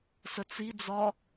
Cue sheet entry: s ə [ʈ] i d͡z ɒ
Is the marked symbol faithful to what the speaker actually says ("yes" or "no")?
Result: no